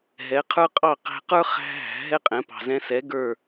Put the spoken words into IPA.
ɦɛ˩˥qʰə˞˥ qʼɑ˥˩ qæ̤˧qə˞˥ χæ̤˥ɦæ̤˩˥ɦɛ˥qʼɛ̃˩˥ pɑ̤˩zɛ̃˧sɛ˩˥ ɡə˞˥˩

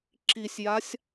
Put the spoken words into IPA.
ǁisʲjasʲ

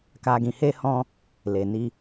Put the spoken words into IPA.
ka˨ɡĩ˨he˧hɔ̃˧ | le˨ni˧

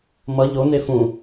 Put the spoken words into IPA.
mʌ ʎone fũ

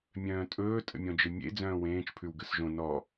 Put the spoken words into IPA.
mʲœ̃ːtʼɵː tʼə̰mʲɔ̃d͡ʒɘmʲḛ d͡zœ̃ːwẽːt͡ʃ pʰʉwɡəsʒõ nɔ

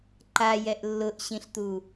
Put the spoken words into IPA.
ǃajɛʔ lːʊʔɕĩɬt̪u

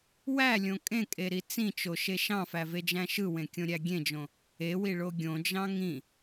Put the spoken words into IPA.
wælʲõ kʼẽkʼeɾi t͡sĩt͡ʃoʃe ʃɑ̃fæved͡ʒæ̃ ʃɯwẽkʲõɾʲæ ɡʲẽd͡ʒõ | ewiɭo ɡʲõd͡ʒɑ̃ ŋĩ

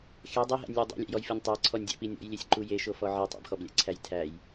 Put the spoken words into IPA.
xe dˤeɦæ̰nʲlʲe dˤo̰lʲæ̰jɔjfenʲ tˤæǀʰɔnʲdʲæ̰pi nʲɔ̰jlʲesʲǃu jeʃofɔ ʕitˤ ɔ̰bxɔblʲæ̰ǀʰæj tʰæj

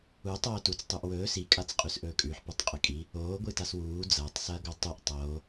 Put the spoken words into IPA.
u tˤoːtut͡s tˤuʔwɵː si kʼat͡sqʼʉsʔɵːkʼʉħ pʉtˤqʼɨkʼi | oː ɡʷɨtaswuː d͡zɐːtˤ sɐːɡotˤʉʔ tˤoː

